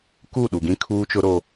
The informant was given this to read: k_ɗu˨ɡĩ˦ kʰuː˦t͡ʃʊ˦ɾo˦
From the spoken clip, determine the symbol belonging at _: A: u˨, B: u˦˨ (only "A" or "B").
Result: B